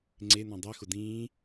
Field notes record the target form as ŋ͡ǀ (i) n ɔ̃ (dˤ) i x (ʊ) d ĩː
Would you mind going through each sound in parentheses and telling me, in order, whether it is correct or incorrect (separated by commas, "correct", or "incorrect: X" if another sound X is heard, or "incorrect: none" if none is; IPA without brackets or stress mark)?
incorrect: e, correct, correct